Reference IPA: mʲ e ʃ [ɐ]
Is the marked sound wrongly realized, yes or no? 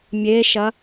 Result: no